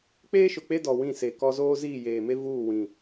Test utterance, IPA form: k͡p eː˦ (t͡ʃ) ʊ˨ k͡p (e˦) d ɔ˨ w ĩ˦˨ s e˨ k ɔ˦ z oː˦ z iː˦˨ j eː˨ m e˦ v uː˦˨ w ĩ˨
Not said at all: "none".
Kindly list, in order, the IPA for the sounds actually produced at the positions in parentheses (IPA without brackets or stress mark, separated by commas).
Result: ʃ, e˦